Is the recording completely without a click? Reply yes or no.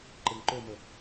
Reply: no